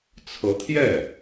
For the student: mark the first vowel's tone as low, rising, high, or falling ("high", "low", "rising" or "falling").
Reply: rising